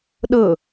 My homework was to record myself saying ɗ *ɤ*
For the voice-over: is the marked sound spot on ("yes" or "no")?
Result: yes